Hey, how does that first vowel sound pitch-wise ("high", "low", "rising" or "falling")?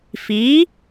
rising